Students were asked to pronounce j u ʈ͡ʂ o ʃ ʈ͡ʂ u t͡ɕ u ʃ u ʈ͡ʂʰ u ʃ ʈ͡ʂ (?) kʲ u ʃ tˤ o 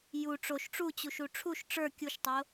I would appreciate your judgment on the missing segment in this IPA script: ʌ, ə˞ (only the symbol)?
ə˞